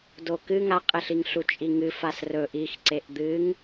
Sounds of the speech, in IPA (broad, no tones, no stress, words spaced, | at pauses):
dokɨ ŋaqʼeɬiŋɬu t͡ʃʼiŋɨfas rɵ ʔixǀeʔ d̪ɨŋ